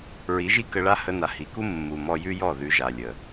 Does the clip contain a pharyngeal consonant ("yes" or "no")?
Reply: no